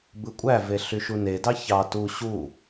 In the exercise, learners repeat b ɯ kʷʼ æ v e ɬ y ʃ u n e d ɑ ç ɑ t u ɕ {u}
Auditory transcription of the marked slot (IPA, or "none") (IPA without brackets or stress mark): u